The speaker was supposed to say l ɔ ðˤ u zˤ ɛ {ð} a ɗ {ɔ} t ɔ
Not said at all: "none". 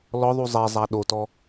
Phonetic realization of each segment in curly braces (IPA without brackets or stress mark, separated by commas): zˤ, o